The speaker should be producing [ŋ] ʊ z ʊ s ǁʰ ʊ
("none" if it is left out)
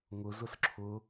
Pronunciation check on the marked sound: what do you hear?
ŋ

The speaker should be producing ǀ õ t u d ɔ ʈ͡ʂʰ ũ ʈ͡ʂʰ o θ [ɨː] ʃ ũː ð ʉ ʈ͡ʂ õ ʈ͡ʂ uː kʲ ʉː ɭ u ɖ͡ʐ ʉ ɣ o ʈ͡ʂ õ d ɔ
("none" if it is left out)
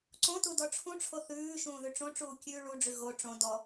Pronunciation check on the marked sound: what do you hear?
ʉː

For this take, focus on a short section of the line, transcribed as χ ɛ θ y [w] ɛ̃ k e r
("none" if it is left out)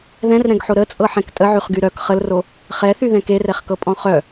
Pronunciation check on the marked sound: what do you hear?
ð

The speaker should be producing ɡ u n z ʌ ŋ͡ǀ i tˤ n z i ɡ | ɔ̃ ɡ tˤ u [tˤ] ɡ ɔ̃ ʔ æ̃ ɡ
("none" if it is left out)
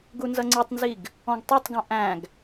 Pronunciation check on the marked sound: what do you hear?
tˤ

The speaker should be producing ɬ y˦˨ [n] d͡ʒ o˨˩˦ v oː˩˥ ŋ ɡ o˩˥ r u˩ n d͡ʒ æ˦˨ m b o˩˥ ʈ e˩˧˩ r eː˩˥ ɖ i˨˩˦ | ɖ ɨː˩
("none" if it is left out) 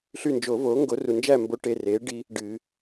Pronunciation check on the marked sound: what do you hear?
n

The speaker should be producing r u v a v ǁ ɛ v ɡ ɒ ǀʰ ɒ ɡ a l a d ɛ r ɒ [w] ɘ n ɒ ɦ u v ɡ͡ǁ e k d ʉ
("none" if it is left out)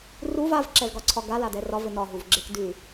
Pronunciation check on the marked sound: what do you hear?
v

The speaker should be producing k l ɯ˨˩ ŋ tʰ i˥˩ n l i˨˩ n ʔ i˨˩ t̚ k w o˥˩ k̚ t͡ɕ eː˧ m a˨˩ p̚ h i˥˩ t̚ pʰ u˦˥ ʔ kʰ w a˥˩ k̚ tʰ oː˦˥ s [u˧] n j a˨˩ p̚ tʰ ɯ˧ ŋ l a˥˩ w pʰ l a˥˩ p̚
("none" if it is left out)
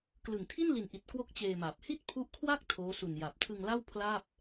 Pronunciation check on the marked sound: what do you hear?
u˧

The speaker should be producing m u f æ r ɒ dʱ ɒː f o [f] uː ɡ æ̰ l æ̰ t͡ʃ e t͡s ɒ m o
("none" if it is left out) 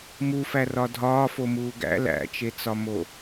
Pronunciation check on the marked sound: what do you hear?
m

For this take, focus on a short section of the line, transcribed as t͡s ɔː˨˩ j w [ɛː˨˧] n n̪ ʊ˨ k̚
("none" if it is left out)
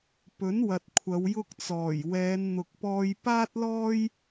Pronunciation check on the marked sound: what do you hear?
ɛː˨˧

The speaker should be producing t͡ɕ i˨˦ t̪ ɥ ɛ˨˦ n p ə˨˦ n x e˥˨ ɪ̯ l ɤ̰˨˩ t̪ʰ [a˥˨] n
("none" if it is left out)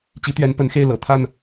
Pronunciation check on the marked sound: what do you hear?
a˥˨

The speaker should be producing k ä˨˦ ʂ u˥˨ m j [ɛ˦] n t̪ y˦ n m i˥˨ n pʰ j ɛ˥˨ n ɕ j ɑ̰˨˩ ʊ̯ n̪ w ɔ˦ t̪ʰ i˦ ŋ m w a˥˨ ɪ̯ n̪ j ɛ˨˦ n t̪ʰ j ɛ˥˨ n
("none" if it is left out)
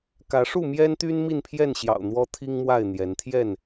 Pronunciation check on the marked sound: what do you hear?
ɛ˦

